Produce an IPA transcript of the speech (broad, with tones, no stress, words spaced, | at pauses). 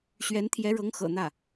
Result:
ɕɥɛ˧˥nt̪ʰjɛ˧˥ɻɤ˧˥ŋ xɤ̰˨˩n̪ä˥˩